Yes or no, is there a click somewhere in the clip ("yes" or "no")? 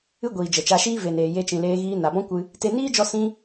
no